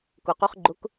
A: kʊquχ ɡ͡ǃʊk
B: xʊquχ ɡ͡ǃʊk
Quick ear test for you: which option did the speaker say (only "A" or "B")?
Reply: A